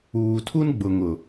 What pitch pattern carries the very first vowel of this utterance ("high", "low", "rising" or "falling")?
low